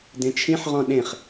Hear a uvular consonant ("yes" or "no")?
yes